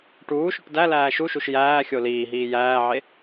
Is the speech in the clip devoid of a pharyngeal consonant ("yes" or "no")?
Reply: no